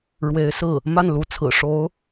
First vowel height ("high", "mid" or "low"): mid